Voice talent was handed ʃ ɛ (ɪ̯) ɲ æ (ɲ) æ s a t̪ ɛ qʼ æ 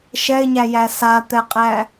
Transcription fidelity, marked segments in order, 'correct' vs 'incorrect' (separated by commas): correct, incorrect